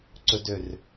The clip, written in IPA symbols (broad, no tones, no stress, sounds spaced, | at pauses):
ǀ ɵ d ø r